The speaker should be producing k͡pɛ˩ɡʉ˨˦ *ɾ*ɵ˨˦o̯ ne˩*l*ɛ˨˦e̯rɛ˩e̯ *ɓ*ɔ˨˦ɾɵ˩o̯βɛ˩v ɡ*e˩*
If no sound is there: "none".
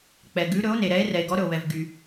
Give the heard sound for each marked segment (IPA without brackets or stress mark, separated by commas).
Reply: ɾ, ɾ, ɡ, y˩